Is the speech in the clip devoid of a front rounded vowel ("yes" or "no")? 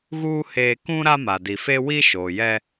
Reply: yes